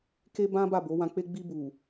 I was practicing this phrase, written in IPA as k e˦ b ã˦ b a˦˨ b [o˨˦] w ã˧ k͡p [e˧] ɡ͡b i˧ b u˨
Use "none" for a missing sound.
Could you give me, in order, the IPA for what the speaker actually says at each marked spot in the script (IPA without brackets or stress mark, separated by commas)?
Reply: o˨˦, e˦